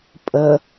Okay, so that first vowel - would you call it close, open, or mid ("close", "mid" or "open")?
mid